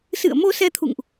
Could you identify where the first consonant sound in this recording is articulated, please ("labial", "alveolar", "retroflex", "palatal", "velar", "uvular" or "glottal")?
alveolar